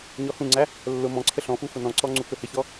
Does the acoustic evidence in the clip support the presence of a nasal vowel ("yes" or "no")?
yes